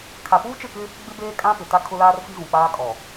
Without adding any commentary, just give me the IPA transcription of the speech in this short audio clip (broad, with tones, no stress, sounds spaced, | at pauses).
kʰ a˨ p uː˦ t͡ʃ ɪ˦˨ k ɪ˦ | ɡ͡b ɪ˦ b eː˦ kʼ ã˦ p ɪ˨ t a˦ kʰ ʊ˦ l aː˦ r f i˦ ɣ ũ˨ k͡p aː˦ kʼ ɔ˨